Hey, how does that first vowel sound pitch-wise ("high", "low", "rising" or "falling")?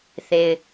low